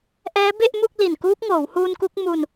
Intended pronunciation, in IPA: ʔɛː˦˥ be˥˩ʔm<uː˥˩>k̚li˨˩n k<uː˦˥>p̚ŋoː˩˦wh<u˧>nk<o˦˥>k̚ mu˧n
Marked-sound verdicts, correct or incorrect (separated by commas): incorrect, correct, incorrect, incorrect